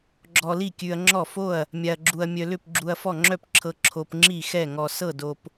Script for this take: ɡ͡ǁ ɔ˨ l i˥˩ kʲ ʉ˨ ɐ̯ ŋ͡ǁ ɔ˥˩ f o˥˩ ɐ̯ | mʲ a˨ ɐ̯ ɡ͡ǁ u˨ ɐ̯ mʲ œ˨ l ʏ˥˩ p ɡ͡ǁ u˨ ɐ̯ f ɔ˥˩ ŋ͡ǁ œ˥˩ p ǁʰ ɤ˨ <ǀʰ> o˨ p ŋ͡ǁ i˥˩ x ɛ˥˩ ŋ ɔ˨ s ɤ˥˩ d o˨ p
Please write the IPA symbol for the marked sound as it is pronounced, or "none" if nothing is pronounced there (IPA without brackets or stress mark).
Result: ǁʰ